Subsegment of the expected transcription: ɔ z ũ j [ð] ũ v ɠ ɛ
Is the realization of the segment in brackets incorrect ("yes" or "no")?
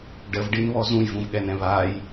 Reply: yes